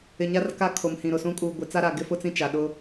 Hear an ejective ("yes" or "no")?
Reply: yes